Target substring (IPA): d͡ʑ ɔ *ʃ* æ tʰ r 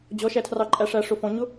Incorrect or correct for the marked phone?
correct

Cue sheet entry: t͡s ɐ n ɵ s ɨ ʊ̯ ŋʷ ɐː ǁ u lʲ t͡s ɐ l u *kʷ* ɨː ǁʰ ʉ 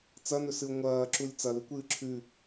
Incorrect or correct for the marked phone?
correct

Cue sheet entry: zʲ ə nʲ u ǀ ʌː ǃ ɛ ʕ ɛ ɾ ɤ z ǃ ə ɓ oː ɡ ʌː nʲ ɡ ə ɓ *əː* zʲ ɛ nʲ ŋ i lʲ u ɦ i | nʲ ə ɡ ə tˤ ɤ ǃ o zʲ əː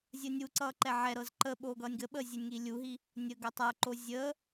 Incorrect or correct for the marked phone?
correct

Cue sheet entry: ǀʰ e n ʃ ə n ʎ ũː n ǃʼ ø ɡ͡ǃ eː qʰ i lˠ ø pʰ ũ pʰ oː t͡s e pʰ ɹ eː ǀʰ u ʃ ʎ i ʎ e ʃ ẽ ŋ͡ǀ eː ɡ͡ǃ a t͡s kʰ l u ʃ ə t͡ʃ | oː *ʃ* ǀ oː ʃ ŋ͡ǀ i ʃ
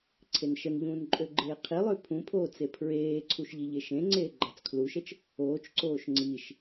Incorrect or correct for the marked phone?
incorrect: t͡ʃ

